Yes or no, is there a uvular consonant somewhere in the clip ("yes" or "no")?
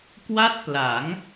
no